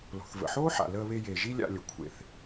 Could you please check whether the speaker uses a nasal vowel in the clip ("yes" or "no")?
no